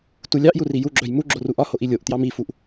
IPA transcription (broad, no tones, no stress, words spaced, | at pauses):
tulʲɑʔju rijuɡ͡ǁœj muɡ͡ǁo ruʔɒhoʔ ilʲoʔtjɑm ifuʔ